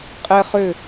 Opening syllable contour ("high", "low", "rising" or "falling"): high